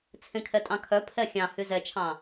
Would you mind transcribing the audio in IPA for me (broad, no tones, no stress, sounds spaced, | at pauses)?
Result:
t͡sʰ ẽ kʰ ɛ tʼ ɑ̃ kʰ œ pʰ ɛ xʲ ɑ̃ h y z ɛ t͡ʃʰ ɑ̃